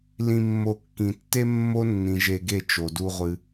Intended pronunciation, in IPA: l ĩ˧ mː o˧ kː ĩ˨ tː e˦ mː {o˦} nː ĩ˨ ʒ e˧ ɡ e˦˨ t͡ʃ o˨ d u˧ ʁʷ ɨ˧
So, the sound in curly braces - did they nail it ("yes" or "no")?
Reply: yes